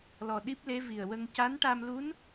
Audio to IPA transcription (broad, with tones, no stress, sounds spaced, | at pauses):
l ɔ˨˩ ɗ i˦˥ p̚ l e˧˥ v i˨˩ ə̯ w ə˧ ŋ c a˧˥ n ʈ a˧ m l u˧˥ n